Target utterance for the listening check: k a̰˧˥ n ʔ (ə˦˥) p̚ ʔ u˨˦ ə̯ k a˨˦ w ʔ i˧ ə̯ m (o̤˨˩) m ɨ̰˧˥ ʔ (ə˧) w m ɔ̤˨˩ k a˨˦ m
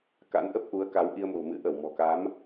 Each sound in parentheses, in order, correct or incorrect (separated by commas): correct, correct, incorrect